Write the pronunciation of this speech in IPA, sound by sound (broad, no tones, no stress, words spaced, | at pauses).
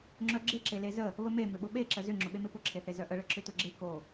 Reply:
ŋ͡ǁœɡ͡ǁe ǁelezə | βəme mʏɓʊɓe ǁəzʏ ŋ͡ǁʊɓemepʊ ǁʰeθezœʔə ɭəǁʏtʊɡ͡ǁe ko